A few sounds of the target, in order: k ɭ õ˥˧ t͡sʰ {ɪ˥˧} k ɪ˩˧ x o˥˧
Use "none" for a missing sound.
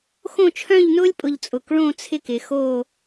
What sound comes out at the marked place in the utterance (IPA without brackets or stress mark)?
ɪ˥˧